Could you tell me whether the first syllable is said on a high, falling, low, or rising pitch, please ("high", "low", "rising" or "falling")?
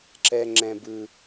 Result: high